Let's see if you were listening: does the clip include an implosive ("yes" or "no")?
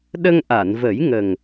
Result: yes